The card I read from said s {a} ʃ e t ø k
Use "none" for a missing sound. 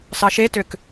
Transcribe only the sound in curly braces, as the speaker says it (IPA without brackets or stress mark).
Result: ɑ